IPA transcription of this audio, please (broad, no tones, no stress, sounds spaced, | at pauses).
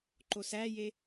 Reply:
ǃ o s æ j e